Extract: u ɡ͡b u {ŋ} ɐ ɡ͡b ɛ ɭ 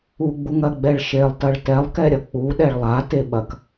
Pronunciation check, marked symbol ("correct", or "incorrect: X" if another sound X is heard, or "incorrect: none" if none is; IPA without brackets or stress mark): correct